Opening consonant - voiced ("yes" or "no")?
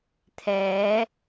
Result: no